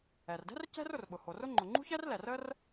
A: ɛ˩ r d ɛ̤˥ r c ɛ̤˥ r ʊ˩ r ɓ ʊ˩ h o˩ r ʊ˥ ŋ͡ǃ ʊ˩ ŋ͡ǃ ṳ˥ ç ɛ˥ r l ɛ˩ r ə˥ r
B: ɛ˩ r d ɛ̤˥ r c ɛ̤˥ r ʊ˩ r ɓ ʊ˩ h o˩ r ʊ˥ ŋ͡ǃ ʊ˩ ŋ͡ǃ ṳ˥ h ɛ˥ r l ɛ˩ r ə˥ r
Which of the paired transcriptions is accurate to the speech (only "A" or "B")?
A